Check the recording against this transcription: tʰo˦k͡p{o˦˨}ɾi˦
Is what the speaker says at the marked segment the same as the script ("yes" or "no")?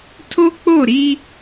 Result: yes